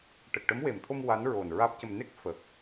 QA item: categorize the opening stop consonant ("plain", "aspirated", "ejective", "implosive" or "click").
plain